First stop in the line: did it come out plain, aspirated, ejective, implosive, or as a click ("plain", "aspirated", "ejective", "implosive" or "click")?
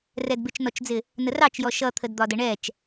plain